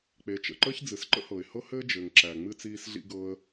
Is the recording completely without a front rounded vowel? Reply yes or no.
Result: yes